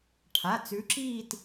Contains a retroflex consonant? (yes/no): yes